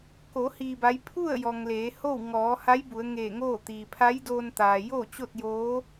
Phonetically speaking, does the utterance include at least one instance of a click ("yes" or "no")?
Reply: no